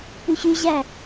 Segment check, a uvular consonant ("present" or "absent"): absent